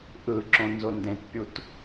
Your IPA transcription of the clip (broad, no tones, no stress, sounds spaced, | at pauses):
ʔ ɯ ǁ õ n z o n d ẽ t pʲ u t